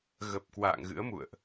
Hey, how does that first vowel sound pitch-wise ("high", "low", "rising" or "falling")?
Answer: low